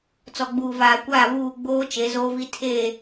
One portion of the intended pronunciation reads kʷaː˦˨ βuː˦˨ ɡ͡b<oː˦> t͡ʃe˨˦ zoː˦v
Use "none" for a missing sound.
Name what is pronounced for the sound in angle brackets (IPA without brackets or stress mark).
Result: oː˦